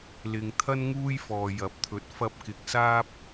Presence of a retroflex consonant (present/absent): absent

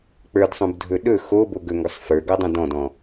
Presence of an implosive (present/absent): present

